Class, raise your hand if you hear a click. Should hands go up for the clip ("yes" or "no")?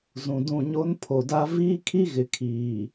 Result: no